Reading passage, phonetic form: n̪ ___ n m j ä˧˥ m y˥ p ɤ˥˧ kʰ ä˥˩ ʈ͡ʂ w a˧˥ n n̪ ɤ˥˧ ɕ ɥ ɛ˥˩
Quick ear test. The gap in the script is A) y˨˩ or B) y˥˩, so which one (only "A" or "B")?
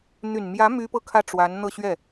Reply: A